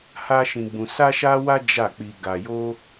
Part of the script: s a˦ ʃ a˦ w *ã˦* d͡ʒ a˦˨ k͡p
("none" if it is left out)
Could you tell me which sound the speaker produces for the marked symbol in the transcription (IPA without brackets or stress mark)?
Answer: a˦